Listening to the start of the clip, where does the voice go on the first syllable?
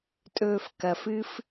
low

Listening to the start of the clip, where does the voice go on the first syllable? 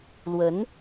rising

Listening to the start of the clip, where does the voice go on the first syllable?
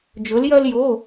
rising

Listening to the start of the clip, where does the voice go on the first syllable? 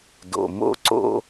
low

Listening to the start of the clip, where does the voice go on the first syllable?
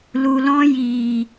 low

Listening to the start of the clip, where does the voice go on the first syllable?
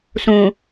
low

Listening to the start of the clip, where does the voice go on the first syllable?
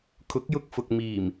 rising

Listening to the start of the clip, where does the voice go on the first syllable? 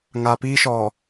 low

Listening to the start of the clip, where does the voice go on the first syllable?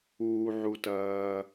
low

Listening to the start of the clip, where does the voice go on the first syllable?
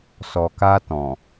low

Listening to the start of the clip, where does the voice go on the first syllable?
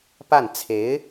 falling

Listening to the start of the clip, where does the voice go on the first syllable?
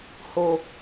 low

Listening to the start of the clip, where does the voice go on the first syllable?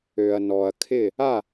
low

